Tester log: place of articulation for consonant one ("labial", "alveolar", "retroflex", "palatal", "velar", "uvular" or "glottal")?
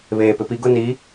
labial